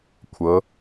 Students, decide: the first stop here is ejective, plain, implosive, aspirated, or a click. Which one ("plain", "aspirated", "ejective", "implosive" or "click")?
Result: aspirated